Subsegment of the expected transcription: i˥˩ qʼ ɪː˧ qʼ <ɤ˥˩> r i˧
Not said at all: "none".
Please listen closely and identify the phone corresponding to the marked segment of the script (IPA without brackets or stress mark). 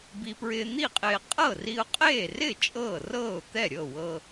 ɤ˥˩